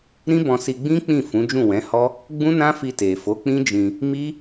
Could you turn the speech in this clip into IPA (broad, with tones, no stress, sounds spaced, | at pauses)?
ɾ ĩ˦ b ɔ̃˧ s i˧ ɡ͡b ĩ˦ k͡p ĩ˦˨ f ũ˨˦ d͡ʒ ũ˦˨ w ɛ̃˨˦ h ɔ˦ | ɡ͡b ũ˦ n ã˦ f i˧ t e˨ f o˨˦ k͡p ĩ˦ d͡ʒ ĩ˧ | m i˦